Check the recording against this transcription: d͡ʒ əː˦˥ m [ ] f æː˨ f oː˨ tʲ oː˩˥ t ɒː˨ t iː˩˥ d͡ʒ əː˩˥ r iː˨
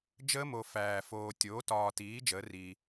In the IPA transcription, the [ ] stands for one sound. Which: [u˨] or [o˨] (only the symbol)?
o˨